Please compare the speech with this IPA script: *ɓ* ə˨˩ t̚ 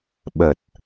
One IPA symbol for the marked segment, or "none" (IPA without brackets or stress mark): ɓ